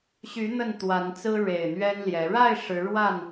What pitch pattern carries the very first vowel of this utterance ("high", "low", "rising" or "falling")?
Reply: rising